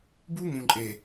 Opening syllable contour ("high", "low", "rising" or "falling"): high